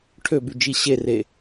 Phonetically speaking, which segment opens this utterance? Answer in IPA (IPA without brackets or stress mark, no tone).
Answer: ʈʰ